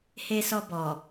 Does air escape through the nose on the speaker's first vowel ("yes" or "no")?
no